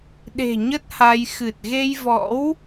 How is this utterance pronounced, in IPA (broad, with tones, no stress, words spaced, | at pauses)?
ɗe̤˨˩ ɲə˦˥t̚ha˧j xɨ˨˩t̚ɣe˧jvɔ̰˧˥w